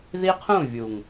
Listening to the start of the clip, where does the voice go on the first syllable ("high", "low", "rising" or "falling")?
high